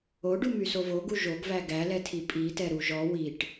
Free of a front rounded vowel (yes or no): no